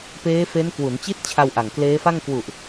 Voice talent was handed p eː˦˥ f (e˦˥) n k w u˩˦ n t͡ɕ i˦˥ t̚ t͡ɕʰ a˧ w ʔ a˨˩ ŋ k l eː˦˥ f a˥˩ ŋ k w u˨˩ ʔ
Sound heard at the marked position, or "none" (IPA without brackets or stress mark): e˦˥